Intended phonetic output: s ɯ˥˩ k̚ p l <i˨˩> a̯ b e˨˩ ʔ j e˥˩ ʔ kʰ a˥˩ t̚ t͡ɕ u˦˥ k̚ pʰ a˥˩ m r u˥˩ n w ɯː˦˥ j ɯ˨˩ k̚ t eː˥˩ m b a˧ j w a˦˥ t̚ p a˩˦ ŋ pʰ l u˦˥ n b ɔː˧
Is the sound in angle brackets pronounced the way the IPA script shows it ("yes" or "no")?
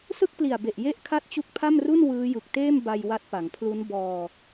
yes